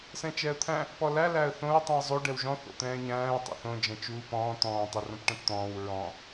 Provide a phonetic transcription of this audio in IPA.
s ɛ̃ t͡ʃ ɛ ə̯ t̪ʰ æ̃ | p ɔ l æ l æ ə̯ θ õ ɹ tˤ ũ ə̯ zˤ o ɖ ɛ w ʒ ɔ̃ θ o̰ t̪ ɛ̃ː ɲ æ̃ː ə̯ tˤ ɛ̰ θ õ d͡ʒ ɛ̃ t͡ʃ uː p ɔ̃ː t̪ ɔ̃ː tˤ ɘ r õ p ʈ ɛ̃ p t̪ ɔ̃ː w ɹ ɔ̃

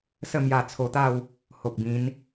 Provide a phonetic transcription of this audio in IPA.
s ə˥˧ m j a˧ t͡sʰ o˧ t̪ a˥˧ w | h o˨ k̚ b ĩ˨˦ n

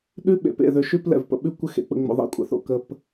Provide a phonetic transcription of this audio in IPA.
ɗ ʉ˦ ɓ ḛ˨ p ḛ˨ ð ø˨˦ ʃ ʉ˦ p l ɛ̰˨ v p ə̰˨ ɓ ʉ˦ kʷ ɘ˦ x ḛ˨ k͡p ə̰˨ ŋ͡m o̰˨ ðˤ ḭ˦ kʷʼ ə̰˨ θ o̰˨ k ə˨ p

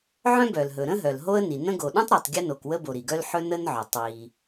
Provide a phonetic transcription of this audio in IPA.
ʕ œ̃˥ b œ˩ l ɦ ɵ˩ ɾ ə̃˥ ɦ œ˩ l ɦ o˥ ə̯ n i˩ n ə̃˥ ɡ o˩ ɗ œ̃˥ tˤ ɾ ɜ˩ tˤ ɡʲ ə˥ n o˩ k w ə˥ b o˩ ɾ i˩ ɡ œ˥ l ħ ɵ˥ n ə˥ n ʕ œ˩ tˤ w i˩

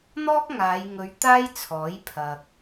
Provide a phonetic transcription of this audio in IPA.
n̪ ɔː˥ k̚ ŋ aː˨˧ j ŋ ɵ˨˧ ɥ t̪ aː˥ j t͡sʰ ɔː˨˥ j pʰ ɐ˨ k̚

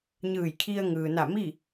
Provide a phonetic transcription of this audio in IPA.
ɲ ɯː˧˩ j kʰ i˧ ə̯ ŋ ɯː˩ n a˧˩ m i˥˨

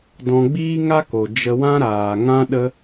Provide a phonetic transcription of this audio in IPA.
d ɔ̃˧ ɡ͡b iː˦ ŋ a˦ k o˨ d͡ʒ ə˧ w ã˦ ɾ aː˨ ŋ ã˦ ɗ ə˧

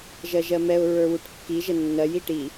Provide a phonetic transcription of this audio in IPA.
ʒ ɜ ʒ ɜ m ɛ ʊ̯ ɹ ə˞ w u ʈ kː i ʒ ə nː ɜ j i ʈ i

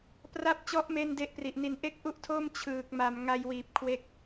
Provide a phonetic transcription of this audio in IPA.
p r a˦˥ p̚ t͡ɕ ɔ˦˥ ʔ m eː˥˩ n d e˦˥ ʔ p r i˨˩ ʔ n i˧ n ʔ e˥˩ k̚ ʔ u˥˩ ʔ tʰ oː˥˩ m t͡ɕʰ ɯː˨˩ k̚ m a˨˩ m ŋ a˧ j w iː˨˩ p̚ kʰ w e˦˥ k̚

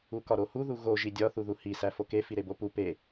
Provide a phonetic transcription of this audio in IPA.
u k ɒ ɾ o h u ð u ɣ o ʒ i dʲ ɒ θ u ð u h i s æ f o k e f i ɾ e b o p u p e

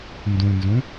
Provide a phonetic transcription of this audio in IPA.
n d ũ n z ũ

